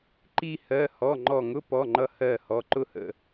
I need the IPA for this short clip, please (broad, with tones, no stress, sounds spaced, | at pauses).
ǃ i˥˧ h ɜ˩˧˩ h ɔ˩˧˩ ŋ͡ǃ ɔ˧˩ ŋ ʊ˧˥˧ p ɔ˩˧˩ ŋ͡ǃ ʌ˧ h ɜ˧˩ h ɔ˩˧˩ ǃ ʊ˥˧ h ə̰˧˩